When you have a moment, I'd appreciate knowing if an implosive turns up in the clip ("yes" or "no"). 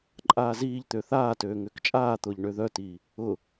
no